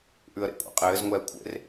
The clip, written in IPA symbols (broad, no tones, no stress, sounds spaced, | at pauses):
ʔ ʉ ə̯ ɾ ḛ kʷʼ ɛ̰ qʼ ɘː z ŋʷ ɛː kʷʰ ḛ r